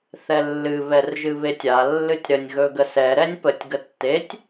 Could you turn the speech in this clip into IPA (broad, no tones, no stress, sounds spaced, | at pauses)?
θ ɛ lː ɨ β ɛ r ʒ ɨ β e tʲ a lː ɨ tʲ ɾ ə nʲ ɣ ɵ ɡ ə s ɛ ɾ ɛ nʲ p ə tʲ ɡ ə tː e tʲ